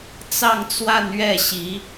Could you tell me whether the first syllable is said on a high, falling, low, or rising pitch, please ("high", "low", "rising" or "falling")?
falling